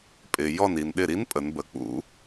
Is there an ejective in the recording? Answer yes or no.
yes